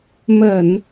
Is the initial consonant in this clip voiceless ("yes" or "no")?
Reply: no